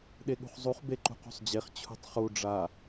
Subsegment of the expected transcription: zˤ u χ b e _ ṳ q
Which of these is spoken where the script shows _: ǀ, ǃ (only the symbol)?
ǃ